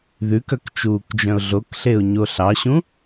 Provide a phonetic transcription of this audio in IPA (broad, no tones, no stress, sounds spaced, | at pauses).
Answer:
ð ʉ k œ k t͡ʃ uː k d͡ʒ œ̃ ʊ̯ ɮ o k ɬ e ʊ̯ ɲ o ɬ ɑ ɕ ũ